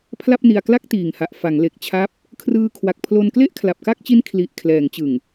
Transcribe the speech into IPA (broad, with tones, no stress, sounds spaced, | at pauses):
pʰ l a˥˩ p̚ n i˧ a̯ k l a˥˩ k̚ t iː˨˩ ŋ h a˨˩ ʔ f a˩˦ ŋ l e˨˩ k̚ t͡ɕʰ a˦˥ p̚ | kʰ r ɯː˧ kʰ w a˨˩ k̚ pʰ l o˧ n k l e˥˩ ʔ kʰ l a˨˩ p̚ k a˥˩ k̚ t͡ɕ i˦˥ n kʰ l i˨˩ ʔ kʰ l ɛː˩˦ ŋ t͡ɕ ɯ˨˩ ŋ